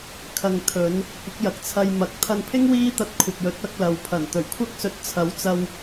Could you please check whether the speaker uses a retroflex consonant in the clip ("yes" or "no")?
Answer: no